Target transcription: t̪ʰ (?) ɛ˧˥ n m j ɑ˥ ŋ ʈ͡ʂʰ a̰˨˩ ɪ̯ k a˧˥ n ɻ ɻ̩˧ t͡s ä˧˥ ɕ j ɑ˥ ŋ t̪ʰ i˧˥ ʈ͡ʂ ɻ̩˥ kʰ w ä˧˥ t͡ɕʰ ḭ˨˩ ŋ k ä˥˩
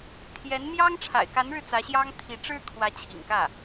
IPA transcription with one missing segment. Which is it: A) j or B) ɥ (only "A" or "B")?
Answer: A